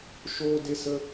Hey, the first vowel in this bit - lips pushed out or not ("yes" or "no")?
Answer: yes